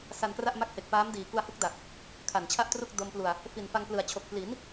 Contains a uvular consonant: no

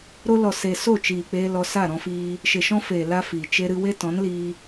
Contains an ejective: no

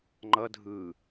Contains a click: yes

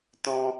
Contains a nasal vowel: yes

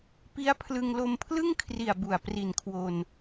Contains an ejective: no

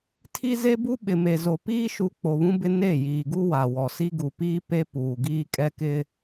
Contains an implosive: yes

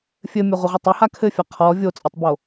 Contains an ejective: yes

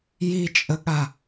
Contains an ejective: yes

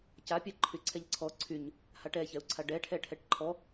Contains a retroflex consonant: yes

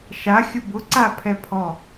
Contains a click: yes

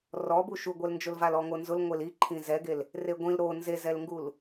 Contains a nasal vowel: yes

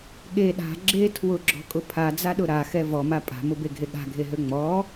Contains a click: yes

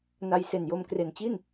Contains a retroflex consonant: no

